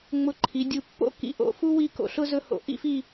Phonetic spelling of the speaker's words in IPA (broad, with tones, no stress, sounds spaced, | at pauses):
ŋ͡m ʊ˧˩ ǃʰ i˩˧ dʲ u˧˩ pː o̰˥ k ḭ˧˩ ʔ o̰˩˧ f u˥ w i˥˧ k o̰˧ ɬ ʊ˥ z ɵ˥ h o̰˧ ʔ ḭ˥ f i˥˧